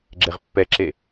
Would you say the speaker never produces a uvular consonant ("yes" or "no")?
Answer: no